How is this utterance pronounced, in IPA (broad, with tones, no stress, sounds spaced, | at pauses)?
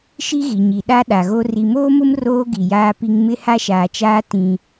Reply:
ʃ i˦ ɣ i˨ ɲ i˨ ɗ a˦ ɗ a˨ ɣ o˦ r i˨ m oː˦ m ʊ˦ m r oː˦ ɡ i˨ j aː˦ p i˦ ŋ m ɪ˦ h a˦ ʃ aː˨ t͡ʃ aː˦ t ĩ˦